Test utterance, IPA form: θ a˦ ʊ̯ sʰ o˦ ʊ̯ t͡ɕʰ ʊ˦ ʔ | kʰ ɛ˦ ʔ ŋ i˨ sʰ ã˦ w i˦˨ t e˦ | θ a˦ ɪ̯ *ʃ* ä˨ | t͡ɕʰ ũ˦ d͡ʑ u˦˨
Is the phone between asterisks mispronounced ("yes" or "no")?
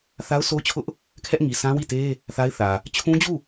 yes